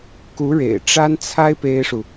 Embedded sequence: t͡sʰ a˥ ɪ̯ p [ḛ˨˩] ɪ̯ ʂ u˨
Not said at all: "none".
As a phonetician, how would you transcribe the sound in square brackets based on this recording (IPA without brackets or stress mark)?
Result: e˥